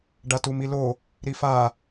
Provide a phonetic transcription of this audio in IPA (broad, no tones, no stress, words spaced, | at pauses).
ɖatumilo | ɾifa